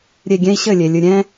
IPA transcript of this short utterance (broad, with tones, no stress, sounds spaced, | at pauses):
ɾʲ e˨ ɡʲ ɛ̃˦ i̯ ɕ ɘ˦˨ lʲ e˨ lʲ ɨ˨ ɾʲ ɛ̃˦